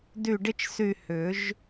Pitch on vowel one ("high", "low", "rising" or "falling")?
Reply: falling